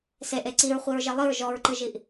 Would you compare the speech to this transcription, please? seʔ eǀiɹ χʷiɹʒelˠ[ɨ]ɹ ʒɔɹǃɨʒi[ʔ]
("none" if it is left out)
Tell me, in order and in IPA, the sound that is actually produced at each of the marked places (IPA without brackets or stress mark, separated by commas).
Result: ɨ, ʔ